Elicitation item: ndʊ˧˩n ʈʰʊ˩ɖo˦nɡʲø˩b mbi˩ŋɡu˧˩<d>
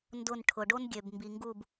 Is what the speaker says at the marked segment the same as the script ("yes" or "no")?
no